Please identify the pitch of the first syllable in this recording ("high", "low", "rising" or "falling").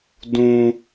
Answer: high